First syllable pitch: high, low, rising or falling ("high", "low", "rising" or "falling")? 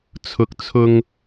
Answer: high